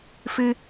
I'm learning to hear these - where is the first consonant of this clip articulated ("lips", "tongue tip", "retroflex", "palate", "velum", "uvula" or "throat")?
lips